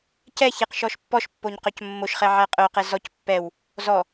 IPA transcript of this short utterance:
cɛçeq ʃɔʃpːɔʃpːoɲ qœcmːoʃχɛ ʕæqʼœqɛ zɔc pːɛw | zɔ

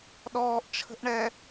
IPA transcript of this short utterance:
ɗɔːʔt͡ʃʰə̤ʔɳɛ

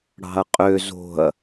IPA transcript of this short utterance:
ɽɑ̤ɐ̯qʼø zo̤ɐ̯

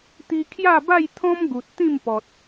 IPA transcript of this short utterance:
t̪i˧kʰja˥˧ba˥˧j t̪ʰɔ̃˦mɡu˨t̚ t̪ĩ˥˧mpɔ˨t̚

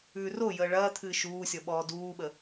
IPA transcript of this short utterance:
ʉːrojəː ɭɐː t̪ʰɨːʃuːsʲɔ ɓɔːduːɓə

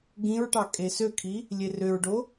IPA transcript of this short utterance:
ɡĩɹʈɑ kʼesøkʰi | lʲerøɹɖo

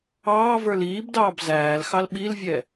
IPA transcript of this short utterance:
ɑːvə˞l iːbdɑːb zæːlxɑl ɓilvʲɛ

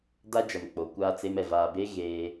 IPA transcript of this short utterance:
da˦d͡ʒa˨n k͡po˨kʷaː˦t͡se˦mɛ˨ vaː˨be˦ ɣeː˦

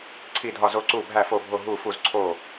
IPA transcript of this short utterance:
ǀʰi˧˩dʱɒ˧˩zo˧˩ ǀu˧˩bʱæ˧˩fo˧˩bʱo˧˩ ɦu˧˩fu˧˩z ǀʰo˧˩

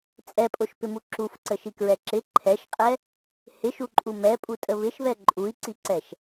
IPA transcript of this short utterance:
t͡sʼɛpʼoʃpɪmu ǁufǀəʃikɹɛ ǁɪ ǃʰɛʃqʼɛ | hɪʃuǃʼu mɛpʼutʼə βɪʃβɛ ǃʼui̯ǀiǀɛʃ

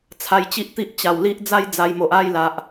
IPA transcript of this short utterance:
t͡sʰa˧jt͡ɕi˦ʔt̪i˦ʔ t͡ɕa˨˩wli˦ʔd͡za˦j d͡za˧jmo˨ʔ a˥˧jla˨ʔ

